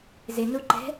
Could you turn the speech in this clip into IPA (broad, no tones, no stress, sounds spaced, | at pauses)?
z ɪ n u ǃ ɛ̤